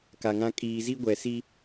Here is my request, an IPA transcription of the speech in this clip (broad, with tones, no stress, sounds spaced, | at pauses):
k a˨ ŋ ã˦ kʼ iː˨ z i˦ ɡʷ ɛ˨ s i˦